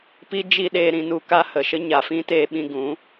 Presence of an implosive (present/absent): present